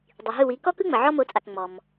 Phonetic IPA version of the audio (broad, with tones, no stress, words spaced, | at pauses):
dˤi˩ɦɯ˥˩wi˩˥ kɔ˥kɯ˥ŋ͡mə˩ ʕɔ˥mo˩˥t͡sʼa˩k ŋ͡mɔ˩m